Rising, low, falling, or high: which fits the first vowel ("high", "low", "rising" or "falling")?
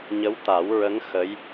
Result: rising